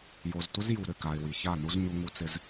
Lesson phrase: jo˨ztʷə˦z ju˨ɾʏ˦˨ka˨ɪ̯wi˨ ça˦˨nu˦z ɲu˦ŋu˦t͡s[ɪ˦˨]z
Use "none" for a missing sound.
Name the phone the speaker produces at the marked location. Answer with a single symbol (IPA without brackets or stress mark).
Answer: ɪ˦